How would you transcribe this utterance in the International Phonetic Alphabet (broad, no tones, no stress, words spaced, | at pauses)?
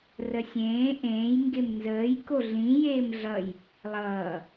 rəsʲẽː ʔẽːj ŋɡemnzəːj koɮĩ jeːmɮʌj | lˠʌː